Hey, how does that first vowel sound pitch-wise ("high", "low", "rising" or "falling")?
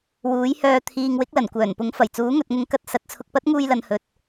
rising